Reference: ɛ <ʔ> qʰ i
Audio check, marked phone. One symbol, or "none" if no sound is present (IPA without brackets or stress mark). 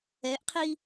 ʔ